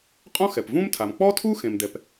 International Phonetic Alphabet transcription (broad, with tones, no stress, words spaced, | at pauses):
qʼɔ̃˥xɛ˩pvũ˥mtʰa˩m k͡pɔ˥tʰu˥ xẽ˩mdɛ˩p